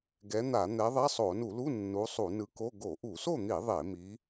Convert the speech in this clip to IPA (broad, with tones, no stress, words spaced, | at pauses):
ɡɛ˨˦n̪a˧˩˧n̪ɛ˨˦ ðˤɛ˧˥˧sˤo˧˩˧nu˧˩˧lu˧˥˧ nːu˨˦ sˤu˧˩˧nɯ˨˦ko˧˥˧ ɡo˧˩˧ʔu˧˩˧so˥˨n̪i˧˩˧ ðˤe˧˩˧mi˨˦